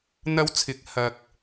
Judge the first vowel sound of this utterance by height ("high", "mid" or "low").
low